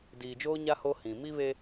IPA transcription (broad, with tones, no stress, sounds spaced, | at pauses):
d iː˨ d͡ʒ oː˦ ɲ a˦ h o˦ h ĩ˨ m i˦ β e˦